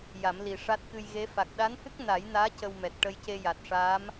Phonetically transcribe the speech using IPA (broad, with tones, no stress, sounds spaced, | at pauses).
j a˨˩˦ m l i˨˩ ʂ a˦˥ t̚ k ɨ˧ j ɣ e˧˥ f a˨˩ k̚ ɗ a˧˥ n h ɨ˦˥ k̚ n a˨˩˦ j n aː˧˥ c ə˧ w m ɛ˨˩ t̚ ʈ ə˧ j c e˧ j a˨˩ t̚ ʂ aː˧˥ m